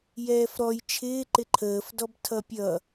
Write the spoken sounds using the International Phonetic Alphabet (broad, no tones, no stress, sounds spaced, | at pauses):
j ɛː f ɾ ɔ j t͡ʃʰ ɪː ǃ ɪ ǃʰ əː f d ɔ b tʰ ʌ pʲ ʌ